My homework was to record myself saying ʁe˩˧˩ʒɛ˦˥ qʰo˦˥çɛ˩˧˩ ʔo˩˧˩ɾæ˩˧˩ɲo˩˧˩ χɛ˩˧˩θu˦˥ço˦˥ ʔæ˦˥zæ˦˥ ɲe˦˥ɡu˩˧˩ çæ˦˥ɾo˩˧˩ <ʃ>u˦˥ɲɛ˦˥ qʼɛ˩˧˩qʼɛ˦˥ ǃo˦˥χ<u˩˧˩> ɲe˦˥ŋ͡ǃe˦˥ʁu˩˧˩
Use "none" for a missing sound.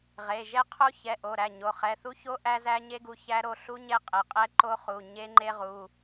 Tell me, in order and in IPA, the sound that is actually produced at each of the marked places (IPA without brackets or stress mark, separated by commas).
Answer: ɬ, u˩˧˩